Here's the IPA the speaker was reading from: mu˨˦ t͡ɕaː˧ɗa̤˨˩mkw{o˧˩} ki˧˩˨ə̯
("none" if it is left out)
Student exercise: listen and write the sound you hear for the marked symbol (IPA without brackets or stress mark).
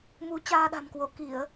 o˧˩